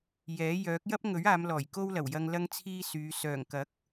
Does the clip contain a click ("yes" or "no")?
no